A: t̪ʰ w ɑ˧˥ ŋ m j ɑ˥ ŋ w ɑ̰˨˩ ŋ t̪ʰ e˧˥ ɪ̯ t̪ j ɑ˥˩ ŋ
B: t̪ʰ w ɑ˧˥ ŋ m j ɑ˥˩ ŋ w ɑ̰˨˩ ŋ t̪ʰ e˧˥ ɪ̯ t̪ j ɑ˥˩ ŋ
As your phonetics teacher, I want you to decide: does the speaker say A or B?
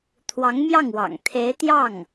B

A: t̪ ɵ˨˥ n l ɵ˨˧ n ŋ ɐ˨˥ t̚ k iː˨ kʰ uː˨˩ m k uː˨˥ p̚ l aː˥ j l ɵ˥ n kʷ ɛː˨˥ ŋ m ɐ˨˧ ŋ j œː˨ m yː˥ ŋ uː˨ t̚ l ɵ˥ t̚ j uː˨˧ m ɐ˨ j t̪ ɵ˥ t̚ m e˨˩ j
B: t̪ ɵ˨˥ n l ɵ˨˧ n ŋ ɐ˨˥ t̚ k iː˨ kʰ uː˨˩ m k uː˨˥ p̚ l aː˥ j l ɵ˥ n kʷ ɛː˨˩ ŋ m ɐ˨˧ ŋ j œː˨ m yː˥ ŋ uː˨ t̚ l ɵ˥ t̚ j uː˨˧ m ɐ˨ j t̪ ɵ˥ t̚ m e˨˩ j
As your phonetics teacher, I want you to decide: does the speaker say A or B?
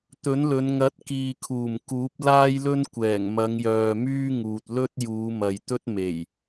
B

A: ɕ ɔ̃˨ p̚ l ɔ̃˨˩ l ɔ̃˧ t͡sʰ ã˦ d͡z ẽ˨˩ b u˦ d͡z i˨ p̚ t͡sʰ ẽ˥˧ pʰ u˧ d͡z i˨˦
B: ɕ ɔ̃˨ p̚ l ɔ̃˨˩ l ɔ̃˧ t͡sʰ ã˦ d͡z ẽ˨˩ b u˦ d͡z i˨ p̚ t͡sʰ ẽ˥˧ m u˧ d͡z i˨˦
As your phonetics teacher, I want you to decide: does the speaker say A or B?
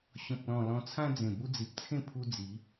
A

